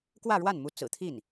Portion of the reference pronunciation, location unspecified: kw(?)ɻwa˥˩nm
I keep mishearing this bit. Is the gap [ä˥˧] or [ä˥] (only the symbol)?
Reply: ä˥˧